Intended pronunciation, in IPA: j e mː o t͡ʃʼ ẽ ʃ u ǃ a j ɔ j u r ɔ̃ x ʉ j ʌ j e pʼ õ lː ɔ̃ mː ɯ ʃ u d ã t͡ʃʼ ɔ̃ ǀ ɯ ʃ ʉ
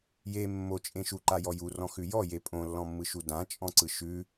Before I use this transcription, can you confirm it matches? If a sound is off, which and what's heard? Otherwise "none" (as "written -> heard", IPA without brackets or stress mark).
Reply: ʌ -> ɔ